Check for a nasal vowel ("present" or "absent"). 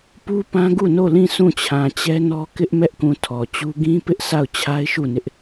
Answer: present